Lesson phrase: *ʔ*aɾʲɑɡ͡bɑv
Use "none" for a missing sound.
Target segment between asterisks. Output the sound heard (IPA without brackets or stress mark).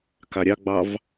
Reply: k